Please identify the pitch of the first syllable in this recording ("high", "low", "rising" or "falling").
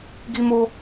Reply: high